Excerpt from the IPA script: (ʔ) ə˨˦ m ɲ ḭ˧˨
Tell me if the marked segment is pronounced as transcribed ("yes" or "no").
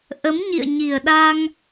yes